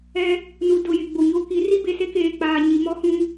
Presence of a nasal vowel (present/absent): present